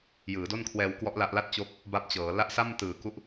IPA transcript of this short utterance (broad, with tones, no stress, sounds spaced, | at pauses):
j ɯː˩˦ d o˥˩ n kʰ w ɛː˧ w k w ɔ˦˥ ʔ l a˦˥ ʔ l a˥˩ t̚ t͡ɕ o˦˥ k̚ | b a˦˥ p̚ t͡ɕ ɤː˩˦ l a˦˥ ʔ s a˥˩ m t ɯː˨˩ k u˦˥ ʔ